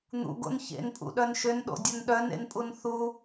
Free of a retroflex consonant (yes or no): yes